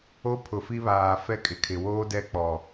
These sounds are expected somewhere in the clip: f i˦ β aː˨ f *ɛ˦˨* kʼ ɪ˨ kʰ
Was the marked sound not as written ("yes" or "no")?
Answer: yes